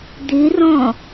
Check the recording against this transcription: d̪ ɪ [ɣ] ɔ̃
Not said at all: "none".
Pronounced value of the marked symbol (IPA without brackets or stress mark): r